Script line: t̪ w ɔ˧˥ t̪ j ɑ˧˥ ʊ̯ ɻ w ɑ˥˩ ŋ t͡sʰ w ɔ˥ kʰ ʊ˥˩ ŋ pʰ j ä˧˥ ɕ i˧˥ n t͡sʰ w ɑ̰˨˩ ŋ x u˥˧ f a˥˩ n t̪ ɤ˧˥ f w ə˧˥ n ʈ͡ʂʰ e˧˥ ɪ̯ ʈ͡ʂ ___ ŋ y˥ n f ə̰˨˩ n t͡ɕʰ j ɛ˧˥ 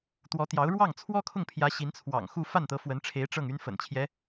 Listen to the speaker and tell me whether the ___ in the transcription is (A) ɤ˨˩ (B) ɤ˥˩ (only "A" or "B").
B